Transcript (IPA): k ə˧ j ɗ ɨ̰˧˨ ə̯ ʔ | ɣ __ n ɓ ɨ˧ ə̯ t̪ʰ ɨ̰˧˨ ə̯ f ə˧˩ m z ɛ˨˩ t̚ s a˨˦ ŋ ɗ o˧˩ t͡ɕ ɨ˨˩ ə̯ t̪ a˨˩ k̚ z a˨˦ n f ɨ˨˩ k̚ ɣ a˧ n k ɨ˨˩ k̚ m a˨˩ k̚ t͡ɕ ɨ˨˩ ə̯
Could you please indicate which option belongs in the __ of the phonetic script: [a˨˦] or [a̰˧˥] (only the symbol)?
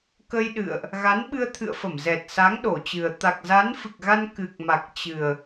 a˨˦